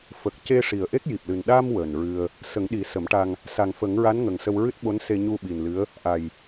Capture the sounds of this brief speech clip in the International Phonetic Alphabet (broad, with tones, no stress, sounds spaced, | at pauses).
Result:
f ə˨˩ k̚ c e˧ ʂ i˨˩ ə̯ ʔ e˦˥ k̚ j i˨˩ p̚ l ɨ˨˩ n ɗ a˧ m w əː˨˩ n ɹ ɨ˧ ə̯ | s ə˨˩˦ ŋ ɗ i˨˩˦ s ə˨˩˦ m ʈ a˧ ŋ | s a˨˩ ŋ f ə˨˩˦ ŋ ɹ a˧˥ n ŋ ə˨˩ ŋ s ə˧ w ɹ ɨ˦˥ t̚ ɓ o˧˥ n s e˧ ɲ u˧ ɓ i˨˩ n l ɨ˧˥ ə̯ | ʔ a˨˩ j